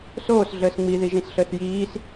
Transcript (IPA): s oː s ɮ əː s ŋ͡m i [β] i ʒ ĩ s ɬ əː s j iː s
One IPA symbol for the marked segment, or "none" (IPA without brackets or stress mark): ð